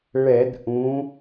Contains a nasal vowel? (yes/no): yes